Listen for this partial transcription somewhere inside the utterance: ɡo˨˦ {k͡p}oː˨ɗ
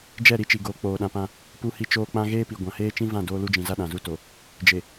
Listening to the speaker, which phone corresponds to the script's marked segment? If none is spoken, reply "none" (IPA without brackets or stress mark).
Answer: k͡p